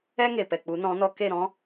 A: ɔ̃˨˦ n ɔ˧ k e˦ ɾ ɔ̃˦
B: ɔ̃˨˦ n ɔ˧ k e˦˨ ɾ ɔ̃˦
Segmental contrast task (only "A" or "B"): B